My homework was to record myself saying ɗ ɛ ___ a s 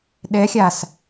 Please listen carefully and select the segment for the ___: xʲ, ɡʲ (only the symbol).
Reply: xʲ